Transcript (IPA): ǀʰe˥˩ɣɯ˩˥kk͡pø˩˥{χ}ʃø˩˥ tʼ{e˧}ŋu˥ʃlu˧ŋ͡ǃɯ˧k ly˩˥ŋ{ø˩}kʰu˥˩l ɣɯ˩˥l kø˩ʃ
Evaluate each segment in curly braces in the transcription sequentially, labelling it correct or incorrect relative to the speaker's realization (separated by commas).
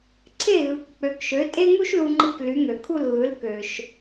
incorrect, incorrect, correct